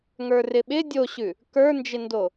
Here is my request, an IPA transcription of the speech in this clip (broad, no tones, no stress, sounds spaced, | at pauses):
ŋ ə˞ r ɪ ɓ ɪ dʲ o ɕ ʉ | k ə˞ n d͡ʒ ɪ n d o